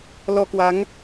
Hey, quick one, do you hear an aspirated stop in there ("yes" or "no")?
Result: no